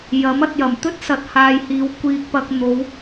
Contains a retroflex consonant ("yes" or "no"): no